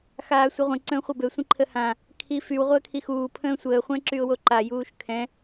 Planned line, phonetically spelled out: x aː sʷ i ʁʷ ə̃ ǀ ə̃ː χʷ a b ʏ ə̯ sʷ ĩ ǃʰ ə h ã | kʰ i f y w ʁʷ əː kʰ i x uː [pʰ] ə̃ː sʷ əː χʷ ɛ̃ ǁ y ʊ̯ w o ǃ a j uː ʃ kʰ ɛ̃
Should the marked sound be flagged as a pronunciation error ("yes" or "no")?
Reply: no